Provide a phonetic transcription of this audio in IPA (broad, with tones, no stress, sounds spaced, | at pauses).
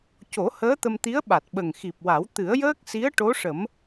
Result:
c o˨˩˦ h əː˧˥ t̪ ə˧ m t̪ i˧˥ ə̯ ɓ a˨˩ t̚ ɓ ə˨˩ ŋ x i˨˩ p̚ w a˨˩˦ w t̪ ɨ˨˩˦ ə̯ j əː˦˥ k̚ s i˧˥ ə̯ ʈ o˧˥ ʂ ə˨˩˦ m